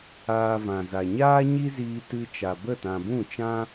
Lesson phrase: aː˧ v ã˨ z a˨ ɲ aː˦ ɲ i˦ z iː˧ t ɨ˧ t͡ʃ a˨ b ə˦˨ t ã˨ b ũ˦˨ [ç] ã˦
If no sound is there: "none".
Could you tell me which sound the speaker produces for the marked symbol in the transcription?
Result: t͡ʃ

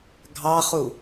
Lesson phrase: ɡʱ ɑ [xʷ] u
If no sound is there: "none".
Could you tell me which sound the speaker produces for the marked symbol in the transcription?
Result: χ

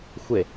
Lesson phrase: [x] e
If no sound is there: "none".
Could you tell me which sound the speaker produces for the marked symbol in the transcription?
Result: xʷ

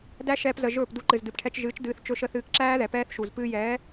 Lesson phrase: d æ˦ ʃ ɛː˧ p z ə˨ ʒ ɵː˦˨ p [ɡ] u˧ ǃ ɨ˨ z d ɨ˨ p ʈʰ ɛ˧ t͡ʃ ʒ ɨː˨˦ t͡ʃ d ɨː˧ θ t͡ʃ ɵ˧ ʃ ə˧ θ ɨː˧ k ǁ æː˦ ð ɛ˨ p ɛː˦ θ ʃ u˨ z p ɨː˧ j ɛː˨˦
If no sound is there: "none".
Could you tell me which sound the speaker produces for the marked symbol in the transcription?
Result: d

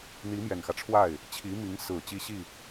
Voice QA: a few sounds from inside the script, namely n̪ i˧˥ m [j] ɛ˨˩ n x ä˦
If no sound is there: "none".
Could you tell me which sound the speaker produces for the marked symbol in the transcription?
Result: j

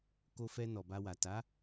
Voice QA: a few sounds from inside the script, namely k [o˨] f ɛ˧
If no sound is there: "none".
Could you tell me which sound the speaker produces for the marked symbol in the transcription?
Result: o˧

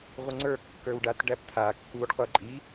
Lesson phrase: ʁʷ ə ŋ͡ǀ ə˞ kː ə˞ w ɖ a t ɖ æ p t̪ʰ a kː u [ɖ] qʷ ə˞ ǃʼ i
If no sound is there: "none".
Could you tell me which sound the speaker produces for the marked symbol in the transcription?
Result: ɖ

